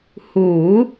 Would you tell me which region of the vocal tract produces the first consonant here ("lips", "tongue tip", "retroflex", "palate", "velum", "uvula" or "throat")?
throat